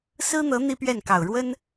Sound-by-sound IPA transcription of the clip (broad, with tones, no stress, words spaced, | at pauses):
sɹ̩˥n̪ɤ˧˥ n̪i˥pɥɛ˥˩nkɑ˨˩ʊ̯ ɻwə˥n